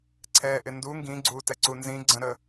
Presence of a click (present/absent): present